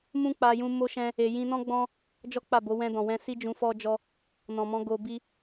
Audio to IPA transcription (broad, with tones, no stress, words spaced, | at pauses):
mũ˦k͡pa˧jũ˧ mo˦ʃɛ̃˦ | e˧ jĩ˧nɔ̃˦ɡ͡bɔ̃˦ | d͡ʒɔ˦k͡pa˦˨bo˨˦ wɛ̃˧dɔ̃˨wɛ̃˧si˦ d͡ʒũ˧fɔ˦d͡ʒɔ˦ | nɔ̃˨mɔ̃˨˦ ɡo˧bi˦